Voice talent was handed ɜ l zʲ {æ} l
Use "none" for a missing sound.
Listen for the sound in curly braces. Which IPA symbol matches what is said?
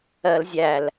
æ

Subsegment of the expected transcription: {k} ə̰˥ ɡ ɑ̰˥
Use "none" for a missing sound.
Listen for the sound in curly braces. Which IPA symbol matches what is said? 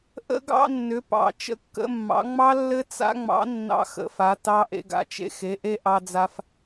ʔ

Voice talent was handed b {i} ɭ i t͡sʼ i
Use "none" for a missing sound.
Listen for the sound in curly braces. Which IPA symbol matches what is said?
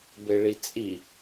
e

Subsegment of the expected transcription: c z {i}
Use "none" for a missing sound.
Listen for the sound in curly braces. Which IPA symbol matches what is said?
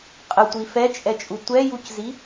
i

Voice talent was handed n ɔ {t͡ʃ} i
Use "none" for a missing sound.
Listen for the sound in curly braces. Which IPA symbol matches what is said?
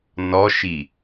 ʃ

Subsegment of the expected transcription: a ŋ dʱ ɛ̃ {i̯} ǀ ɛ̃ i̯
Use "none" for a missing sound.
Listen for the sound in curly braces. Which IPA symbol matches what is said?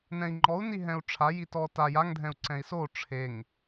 u̯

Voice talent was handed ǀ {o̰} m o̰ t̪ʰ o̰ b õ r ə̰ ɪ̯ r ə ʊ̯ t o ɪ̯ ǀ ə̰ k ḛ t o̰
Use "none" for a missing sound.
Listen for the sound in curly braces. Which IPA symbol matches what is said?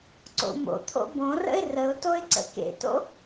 o̰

